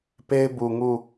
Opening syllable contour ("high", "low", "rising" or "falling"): high